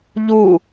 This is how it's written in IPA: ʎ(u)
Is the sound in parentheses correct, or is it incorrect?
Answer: correct